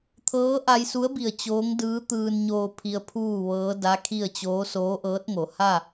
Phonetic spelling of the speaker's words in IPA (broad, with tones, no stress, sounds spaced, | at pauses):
t̪ʰ ɤː˧˥ ʔ a˧ j s u˧˥ ə̯ b i˧˩ ə̯ t͡ɕ oː˧˥ ŋ d ɯː˧˥ t̪ ɯː˧ n ɲ oː˧ pʰ i˧ ə̯ pʰ uː˥˨ ʋ ɤː˧˥ d a˧˥ kʰ i˥˨ ə̯ t͡ɕ oː˧˥ s oː˧˥ ʔ ɤː˧˥ t̚ ŋ o˩˧ h a˥˨